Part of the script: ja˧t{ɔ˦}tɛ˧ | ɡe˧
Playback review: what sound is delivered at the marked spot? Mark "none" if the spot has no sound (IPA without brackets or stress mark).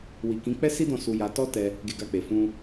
ɔ˦